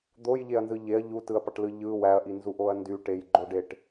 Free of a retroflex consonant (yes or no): no